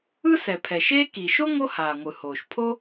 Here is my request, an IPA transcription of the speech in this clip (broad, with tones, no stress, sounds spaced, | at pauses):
ɯ˥ s ɛ˩ pʰ ɛ˩ ʃ eː˥ k i˩ ʃ o˥ ŋ o˦ h aː˩ ŋʷ ɯ˩ h oː˩ ʃ pʰ o˦